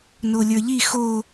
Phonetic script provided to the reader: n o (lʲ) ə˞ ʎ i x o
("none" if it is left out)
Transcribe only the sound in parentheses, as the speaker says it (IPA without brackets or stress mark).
lʲ